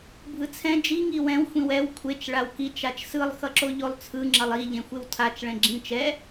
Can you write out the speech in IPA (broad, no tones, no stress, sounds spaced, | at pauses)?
bʱ ɯ t͡sʰ ɛ̃ d͡ʒ i ŋ i w ɛ̃ w xʷ ĩ w ɛ w kʷʰ e t͡ʃ ɭ a w k i t͡ʃ a t͡ʃ s ɯ lˠ x ʌ ǁ o ʎ o lˠ t͡sʰ ɯ ŋ͡ǁ ʌ lˠ i ʎ ẽ xʷ e w tʰ a t͡ʃ ɭ ɛ̃ ɡ͡ǁ ĩ t͡ʃ ɛ